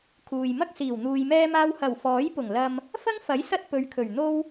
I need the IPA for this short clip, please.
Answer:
kʰ uː˨ j m ɐ˥ k̚ s iː˨˩ w n̪ uː˧ j m ɛː˥ m aː˥ w h ɐ˨˩ w f ɔː˨˥ j p ʊ˨˩ ŋ l ɐ˧ m | f ɐ˥ ŋ f ɐ˨˥ j s ɐ˥ t̚ p ɵ˨˧ ɥ kʰ ɵ˨˩ ɥ n̪ o˥ w

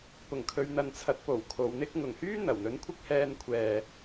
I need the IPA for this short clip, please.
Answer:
p ʊ˨˩ ŋ kʰ ɵ˨˧ ɥ n̪ ɐ˨ n t͡sʰ ɐ˨˥ t̚ p o˨˩ w kʰ o˨˧ w n̪ ɪ˥ k̚ ŋ ʊ˨˩ ŋ h yː˥ n̪ ɐ˨˩ w n̪ ɵ˨˥ n kʷʰ ɪ˥ k̚ h ɛː˧ n kʷʰ ɛː˨

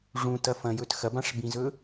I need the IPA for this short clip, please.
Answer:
ʐ ũ t ɐ f ɐ̃ j ɵ t x ɐ b ã ʂ b ĩ z ɵ

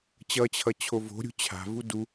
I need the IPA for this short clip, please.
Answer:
t͡ɕ ʌ t͡ɕʰ ʌ t͡ɕʰ o v o̤ ɾʲ ṳ t͡ɕʰ a̤ v u d u

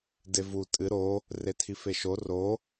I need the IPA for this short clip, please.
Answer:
d e v u tʼ ɨ ɾ o | r e tʰ i f e ʃ o r o

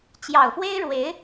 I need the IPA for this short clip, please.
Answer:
t͡ɕ j ɑ˨˩ ʊ̯ f w e˥ ɪ̯ ɻ w e˧˥ ɪ̯

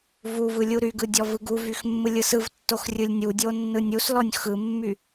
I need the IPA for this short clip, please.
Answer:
v u v ɯ lʲ u ɾ y ɡ ɯ dʲ ɔ v ɯ ɡ u v y x mː ɯ lʲ ɯ s ɯ v tː o x rʲ ɯ lʲ nʲ u dʲ o nː ɯ nʲ u s l ɔ nʲ x ɯ mː y

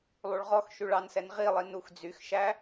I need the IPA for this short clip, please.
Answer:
lˠ u ɭ ʁ ɔ x ʃ y ɭ ɑ n s ɛ n ʁ i lˠ i n u x d͡z y x ʃ æ

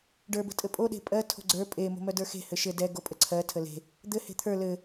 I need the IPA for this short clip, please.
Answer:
ɖ ə˞ b ə̤ tʼ ɘ pʼ o ɗ e̤ pʼ ɜ tʰ o̤ ɡ͡ǀ ə˞ pʼ e m o̤ m œ d ə˞ x e̤ h ɘ ʃ ɘ d ɛ ɡ o pʼ ə ǀʰ ɜ tʰ ə l e̤ | d̪ ɘ h e̤ t̪ʰ ə˞ l ɘ

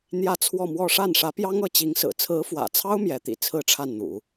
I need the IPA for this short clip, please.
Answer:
n̪ j ä˥˧ t͡sʰ w ɔ˥˧ m w ɔ˥˧ ʂ a˥˩ n ʂ ä˧˥ p j ɑ˥ ŋ ɤ˧˥ t͡ɕ i˧˥ ŋ s ɹ̩˨˩ t͡sʰ ɹ̩˧˥ f w ä̰˨˩ t͡sʰ ɑ˥ ʊ̯ m j ɛ˧˥ t̪ ḭ˨˩ t͡sʰ ɹ̩˥˧ ʈ͡ʂʰ a˥˩ n n̪ ṵ˨˩˦

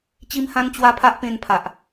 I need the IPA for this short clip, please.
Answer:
t͡ɕ i˦ m h ã˦ n t͡ɕ w a˦ pʰ a˦ ʔ p ẽ˧ n pʰ a˨ ʔ

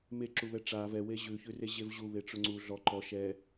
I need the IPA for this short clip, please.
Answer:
m e ǁ u β ɛ ʈ͡ʂ a v ɛ w e ʑ ʉ ç ʉ r e ʑ e v ʑ u β e ʈ͡ʂ ʊ ŋ͡ǀ u ɮ ɔ ǃ ɔ ʃ ɛ

